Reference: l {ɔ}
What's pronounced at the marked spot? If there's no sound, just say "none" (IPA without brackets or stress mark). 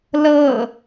ɤ